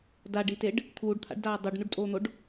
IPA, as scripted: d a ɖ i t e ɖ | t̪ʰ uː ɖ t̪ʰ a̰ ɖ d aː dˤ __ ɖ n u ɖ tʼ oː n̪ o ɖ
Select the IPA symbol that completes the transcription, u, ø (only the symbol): u